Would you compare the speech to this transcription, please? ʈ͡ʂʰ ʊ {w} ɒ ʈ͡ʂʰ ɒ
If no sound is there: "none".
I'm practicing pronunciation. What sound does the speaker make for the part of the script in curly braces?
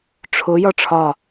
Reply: j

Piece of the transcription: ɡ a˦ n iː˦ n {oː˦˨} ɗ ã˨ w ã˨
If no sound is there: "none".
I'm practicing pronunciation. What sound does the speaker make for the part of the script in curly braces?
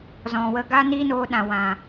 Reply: oː˧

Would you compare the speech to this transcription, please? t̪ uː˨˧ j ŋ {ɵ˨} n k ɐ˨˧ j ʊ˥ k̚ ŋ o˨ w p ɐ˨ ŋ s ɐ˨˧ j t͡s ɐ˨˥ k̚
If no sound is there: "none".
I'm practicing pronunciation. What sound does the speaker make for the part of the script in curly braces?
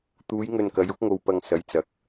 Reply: ɵ˨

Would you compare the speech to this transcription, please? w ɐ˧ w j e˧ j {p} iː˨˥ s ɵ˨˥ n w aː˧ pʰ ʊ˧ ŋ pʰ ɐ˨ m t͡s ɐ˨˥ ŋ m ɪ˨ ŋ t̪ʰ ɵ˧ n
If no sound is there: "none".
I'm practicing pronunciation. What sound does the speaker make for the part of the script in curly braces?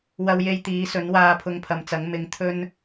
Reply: t̪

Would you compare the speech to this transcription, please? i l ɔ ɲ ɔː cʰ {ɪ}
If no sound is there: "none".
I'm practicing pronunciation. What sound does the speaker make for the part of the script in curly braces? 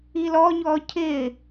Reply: ɪ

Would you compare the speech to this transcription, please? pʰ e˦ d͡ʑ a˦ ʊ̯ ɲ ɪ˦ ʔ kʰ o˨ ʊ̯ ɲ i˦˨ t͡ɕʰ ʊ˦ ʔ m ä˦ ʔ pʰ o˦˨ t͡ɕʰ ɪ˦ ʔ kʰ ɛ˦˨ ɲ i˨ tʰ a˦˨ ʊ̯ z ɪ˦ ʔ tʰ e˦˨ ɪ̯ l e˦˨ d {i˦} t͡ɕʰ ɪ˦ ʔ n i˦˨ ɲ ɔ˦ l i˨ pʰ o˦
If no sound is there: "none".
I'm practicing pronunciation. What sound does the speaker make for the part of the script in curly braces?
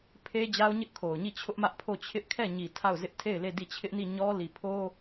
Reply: i˦˨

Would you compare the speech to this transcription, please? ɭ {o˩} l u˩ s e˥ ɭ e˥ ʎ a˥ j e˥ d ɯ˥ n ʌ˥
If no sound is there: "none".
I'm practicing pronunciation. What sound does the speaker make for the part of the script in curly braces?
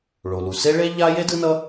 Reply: o˩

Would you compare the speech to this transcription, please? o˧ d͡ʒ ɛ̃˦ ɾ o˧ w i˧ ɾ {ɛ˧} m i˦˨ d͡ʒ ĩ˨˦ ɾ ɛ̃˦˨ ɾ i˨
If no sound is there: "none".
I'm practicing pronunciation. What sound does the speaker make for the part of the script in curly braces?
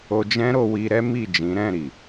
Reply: ɛ˦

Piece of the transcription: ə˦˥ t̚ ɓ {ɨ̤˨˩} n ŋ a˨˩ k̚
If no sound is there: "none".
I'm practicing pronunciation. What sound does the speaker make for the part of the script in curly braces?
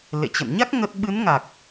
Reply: ɨ˨˦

